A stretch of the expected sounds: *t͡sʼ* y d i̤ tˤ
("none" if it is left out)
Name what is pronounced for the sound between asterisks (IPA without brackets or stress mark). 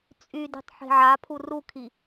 t͡sʼ